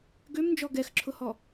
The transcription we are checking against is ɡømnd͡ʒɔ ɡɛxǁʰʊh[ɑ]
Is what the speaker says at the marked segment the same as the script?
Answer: no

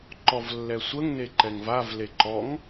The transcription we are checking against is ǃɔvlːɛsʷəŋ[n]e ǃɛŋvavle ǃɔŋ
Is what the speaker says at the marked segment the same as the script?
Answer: yes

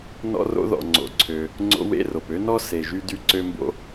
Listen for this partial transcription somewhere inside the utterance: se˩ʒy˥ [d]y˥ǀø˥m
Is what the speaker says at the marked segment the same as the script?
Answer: yes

